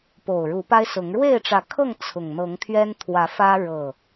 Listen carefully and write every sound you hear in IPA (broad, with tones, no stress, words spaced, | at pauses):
po˨˩ʊ̯ɻu˨˦pa˦ɪ̯sʊ˨˦ŋ ɻwe˥˨ɪ̯ʈ͡ʂä˨˦kʰɤ˥˨ŋ t͡sʰʊ˨˩ŋ n̪ɤ˨˦ŋt̪ʰɥɛ˦nt̪ʰwä˨˦ fä˦ ɻɤ˨˩